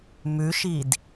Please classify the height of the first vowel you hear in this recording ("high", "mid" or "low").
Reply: high